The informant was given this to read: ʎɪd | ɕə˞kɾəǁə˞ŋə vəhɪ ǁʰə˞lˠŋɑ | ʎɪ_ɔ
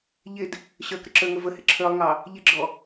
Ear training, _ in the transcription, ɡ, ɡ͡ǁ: ɡ͡ǁ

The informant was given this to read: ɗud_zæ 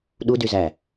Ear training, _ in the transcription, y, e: y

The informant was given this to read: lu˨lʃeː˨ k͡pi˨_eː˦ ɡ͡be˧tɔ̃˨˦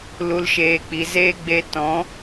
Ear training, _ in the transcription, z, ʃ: z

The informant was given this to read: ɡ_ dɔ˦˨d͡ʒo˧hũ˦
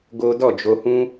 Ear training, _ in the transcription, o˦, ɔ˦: o˦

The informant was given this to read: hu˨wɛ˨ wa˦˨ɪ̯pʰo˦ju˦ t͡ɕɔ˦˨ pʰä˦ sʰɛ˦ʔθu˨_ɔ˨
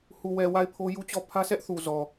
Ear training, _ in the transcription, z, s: z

